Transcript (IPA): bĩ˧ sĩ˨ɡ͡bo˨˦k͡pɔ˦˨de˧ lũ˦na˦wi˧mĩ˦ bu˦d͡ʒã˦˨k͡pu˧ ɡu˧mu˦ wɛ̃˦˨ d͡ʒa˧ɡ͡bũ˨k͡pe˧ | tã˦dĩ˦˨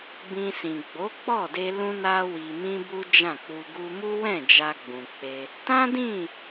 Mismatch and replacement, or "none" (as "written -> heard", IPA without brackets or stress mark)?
none